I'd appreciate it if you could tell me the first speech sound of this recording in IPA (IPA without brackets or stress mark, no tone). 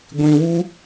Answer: ɡʷ